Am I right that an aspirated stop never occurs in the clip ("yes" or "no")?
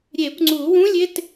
yes